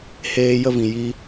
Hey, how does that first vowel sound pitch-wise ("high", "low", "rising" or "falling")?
high